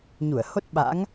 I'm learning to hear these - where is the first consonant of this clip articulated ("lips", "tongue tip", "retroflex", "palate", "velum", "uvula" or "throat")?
palate